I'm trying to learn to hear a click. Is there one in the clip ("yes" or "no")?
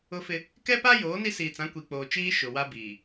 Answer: no